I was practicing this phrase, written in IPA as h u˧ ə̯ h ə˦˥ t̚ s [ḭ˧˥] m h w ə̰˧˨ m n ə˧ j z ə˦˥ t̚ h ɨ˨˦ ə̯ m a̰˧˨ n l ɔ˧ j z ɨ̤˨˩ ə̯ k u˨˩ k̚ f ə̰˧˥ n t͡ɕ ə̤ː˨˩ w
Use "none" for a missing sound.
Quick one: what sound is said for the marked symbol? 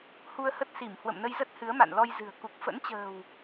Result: i˧˩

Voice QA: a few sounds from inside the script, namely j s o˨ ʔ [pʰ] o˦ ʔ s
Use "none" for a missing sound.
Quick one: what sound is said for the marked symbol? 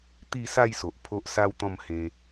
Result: pʰ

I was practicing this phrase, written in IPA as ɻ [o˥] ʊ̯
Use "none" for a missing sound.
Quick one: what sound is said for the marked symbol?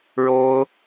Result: o˥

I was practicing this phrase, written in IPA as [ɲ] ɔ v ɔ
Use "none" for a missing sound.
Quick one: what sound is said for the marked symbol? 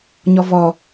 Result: ɲ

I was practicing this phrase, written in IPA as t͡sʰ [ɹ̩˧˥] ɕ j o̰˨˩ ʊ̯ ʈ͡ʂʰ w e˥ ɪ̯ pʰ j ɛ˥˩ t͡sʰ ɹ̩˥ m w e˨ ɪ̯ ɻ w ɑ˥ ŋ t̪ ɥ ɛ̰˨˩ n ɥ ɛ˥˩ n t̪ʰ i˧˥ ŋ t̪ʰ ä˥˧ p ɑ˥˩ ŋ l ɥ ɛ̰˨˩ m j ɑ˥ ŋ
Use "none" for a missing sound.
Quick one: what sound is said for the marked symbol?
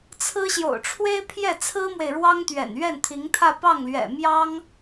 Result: ɹ̩˥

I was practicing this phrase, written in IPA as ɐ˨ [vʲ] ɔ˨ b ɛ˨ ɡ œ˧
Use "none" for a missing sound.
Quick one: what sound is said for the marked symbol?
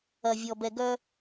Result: vʲ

